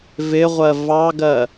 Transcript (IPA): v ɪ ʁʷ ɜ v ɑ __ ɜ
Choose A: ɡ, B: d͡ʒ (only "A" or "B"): A